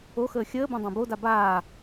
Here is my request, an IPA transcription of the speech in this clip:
o x əː xʲ əː b õ dˤ ã b o d a b aː

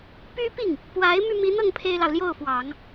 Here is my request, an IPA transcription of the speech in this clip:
p y˥ p i˥˩ ŋ | p w a˧˥ ɪ̯ m y˧ m i˧˥ n̪ ɤ˥˩ ŋ pʰ e˥ ɪ̯ l ɑ˨ ʊ̯ l j o˥˩ ʊ̯ f w ɑ˨˩˦ ŋ

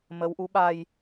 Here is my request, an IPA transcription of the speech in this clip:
m ə˨˦ w ʔ u˨˦ ɓ a˧ j

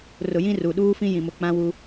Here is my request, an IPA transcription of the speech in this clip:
r ʊ˨ j ĩ˦ r u˨ ɗ uː˦ f ĩ˦ j ĩ˨ m ʊ˨ k͡p ã˦ w u˦

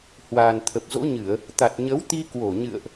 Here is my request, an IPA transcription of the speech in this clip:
h w aː˨˩ n t̪ʰ ə˨˩ p̚ z o̰˧˥ ɲ ɨ˧˩˨ ə̯ | t̪ a˨˩ t̚ ɲ ə˨˦ w t̪ i˧ k w o˧˩ ɲ ɨ̰˧˨ ə̯ ʔ

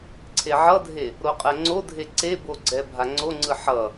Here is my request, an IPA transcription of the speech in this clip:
ǀʰ e ʕ ʌ dʱ e | ɾ o qʼ ɛ ŋ͡ǀ o dʱ e ǀ e b o ɡ͡ǀ ɛ bʱ a ŋ͡ǀ o ŋ͡ǀ ɯ ħ ʌ

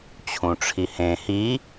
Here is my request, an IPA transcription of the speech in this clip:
t͡ɕʰ ũ ʈ͡ʂʰ i h ẽ h i

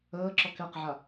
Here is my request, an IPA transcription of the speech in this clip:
əː ǁ ɔ k ɛ q ʕ a

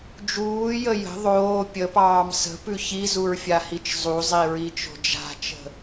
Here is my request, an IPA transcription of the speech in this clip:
d͡ʒ uː j ə j ə̤ ðˤ oː pʲ ə p ɑː m s ə̤ p ʉ ç i z u ɹ fʲ a h i t͡ʃ zˤ u zˤ i ɹ i t͡ʃ o̤ d͡ʒ a̤ t͡ʃ ə̤

